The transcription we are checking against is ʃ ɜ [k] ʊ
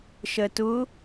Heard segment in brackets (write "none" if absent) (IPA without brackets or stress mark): t